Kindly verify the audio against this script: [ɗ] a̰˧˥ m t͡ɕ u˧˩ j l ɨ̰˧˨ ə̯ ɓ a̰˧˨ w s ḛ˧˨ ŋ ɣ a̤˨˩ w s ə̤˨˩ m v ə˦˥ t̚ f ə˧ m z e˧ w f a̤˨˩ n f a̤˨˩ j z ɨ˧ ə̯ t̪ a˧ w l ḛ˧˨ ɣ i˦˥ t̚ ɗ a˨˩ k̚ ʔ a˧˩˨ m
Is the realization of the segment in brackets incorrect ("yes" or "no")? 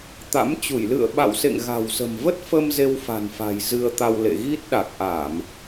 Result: yes